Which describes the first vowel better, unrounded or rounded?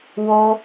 rounded